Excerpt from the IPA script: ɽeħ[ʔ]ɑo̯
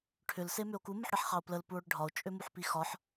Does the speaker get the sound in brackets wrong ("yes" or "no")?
yes